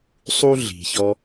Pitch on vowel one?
high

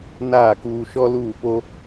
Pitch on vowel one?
falling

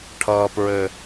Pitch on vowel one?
low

